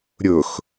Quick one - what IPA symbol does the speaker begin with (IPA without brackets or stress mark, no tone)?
ɾʲ